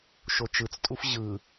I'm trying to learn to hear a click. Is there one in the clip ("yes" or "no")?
no